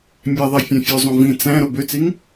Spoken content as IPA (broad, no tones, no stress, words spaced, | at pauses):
mʲæðˤæ fʲɑ̃fʲøzˤõ vĩ t͡sæ̃ ɾobøt͡siŋ